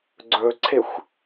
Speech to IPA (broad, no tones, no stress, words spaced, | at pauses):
ɡ͡ǀɵǀʰexʷ